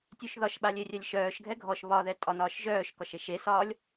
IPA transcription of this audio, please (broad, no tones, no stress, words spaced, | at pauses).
tʲøʃðɒʃɓalʲ erʲɛlʲʃœːʃɡʱɛ ɡʱɔʃ βɒðɛ tʼɒnɒːʃʒœːʃkɒʃ eʃesɒːlʲ